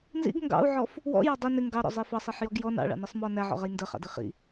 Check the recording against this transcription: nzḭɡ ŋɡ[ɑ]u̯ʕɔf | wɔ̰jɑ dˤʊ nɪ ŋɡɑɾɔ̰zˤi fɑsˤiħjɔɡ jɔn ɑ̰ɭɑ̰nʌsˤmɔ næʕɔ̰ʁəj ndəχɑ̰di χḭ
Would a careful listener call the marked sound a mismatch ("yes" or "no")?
yes